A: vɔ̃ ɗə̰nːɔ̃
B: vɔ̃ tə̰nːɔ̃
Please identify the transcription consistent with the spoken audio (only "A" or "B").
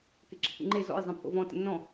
B